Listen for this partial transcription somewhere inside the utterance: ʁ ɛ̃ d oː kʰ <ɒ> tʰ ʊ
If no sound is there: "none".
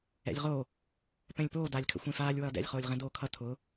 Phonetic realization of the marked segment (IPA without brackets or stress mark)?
ʌ